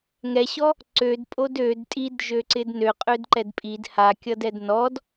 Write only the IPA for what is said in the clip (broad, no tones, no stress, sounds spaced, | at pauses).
ŋ ɛ ɕ ɔ | ǀ ø d pʼ o d ø d tʼ i d ʒ ø ǀ ɪ d n ø qʼ ø d ǃ ɛ d pʼ i d h a kʲ ʌ d ɛ d n ɔ d